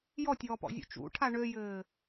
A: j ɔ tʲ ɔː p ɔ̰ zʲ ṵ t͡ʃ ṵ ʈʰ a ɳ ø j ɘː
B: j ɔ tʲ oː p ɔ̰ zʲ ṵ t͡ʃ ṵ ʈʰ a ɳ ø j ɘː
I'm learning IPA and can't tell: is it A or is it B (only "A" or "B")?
A